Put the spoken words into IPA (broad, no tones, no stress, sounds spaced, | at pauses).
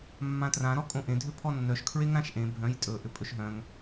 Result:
mː ã t r ã ɾ ɔ kʼ õ ʔ ẽ dʱ ʏ pʰ ɔ nː œ ʃ kʰ ɹ e ŋ ɾ ã ʃ ʔ ẽ bʱ œ̃ j tʼ ɵ ʔ ʏ pʼ ɵ ʃ ɦ œ̃ ŋ